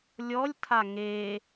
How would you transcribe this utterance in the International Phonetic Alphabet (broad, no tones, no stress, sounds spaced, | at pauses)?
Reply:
lʲ ɔ lʲ tʰ a ŋ e